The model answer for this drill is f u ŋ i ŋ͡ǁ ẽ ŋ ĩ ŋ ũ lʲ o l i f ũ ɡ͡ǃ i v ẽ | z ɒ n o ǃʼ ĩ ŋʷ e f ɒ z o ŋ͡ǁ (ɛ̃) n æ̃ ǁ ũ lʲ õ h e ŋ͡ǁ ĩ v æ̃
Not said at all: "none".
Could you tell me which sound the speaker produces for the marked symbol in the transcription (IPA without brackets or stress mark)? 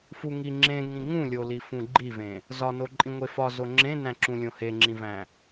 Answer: ẽ